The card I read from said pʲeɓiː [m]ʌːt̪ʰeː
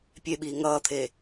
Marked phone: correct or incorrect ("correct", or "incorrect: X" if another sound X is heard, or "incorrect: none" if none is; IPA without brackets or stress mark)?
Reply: incorrect: ŋ